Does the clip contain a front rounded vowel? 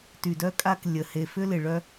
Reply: yes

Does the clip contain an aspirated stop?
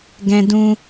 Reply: no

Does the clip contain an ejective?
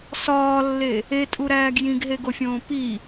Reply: yes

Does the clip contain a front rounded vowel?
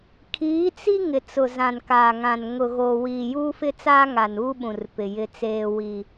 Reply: no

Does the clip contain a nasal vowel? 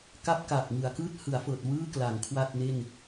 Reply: no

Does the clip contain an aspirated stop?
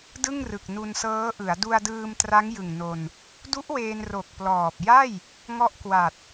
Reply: no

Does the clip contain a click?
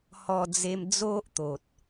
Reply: no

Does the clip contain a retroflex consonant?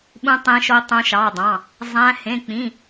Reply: no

